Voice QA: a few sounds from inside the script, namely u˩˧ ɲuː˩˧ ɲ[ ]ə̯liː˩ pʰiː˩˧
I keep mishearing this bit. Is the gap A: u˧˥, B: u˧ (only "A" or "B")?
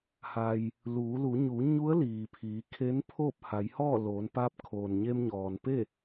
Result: A